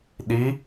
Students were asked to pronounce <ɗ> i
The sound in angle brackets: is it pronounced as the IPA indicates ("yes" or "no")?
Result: yes